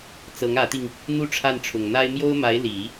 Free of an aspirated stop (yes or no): no